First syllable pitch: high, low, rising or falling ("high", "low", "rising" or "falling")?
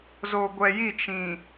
low